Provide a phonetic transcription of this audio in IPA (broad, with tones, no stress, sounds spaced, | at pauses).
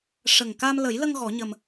ʂ ə˨˩ ŋ k a˧ m l ə˨˩˦ j l ə˧ ŋ ɣ ɔ˨˩˦ ɲ ə˧ m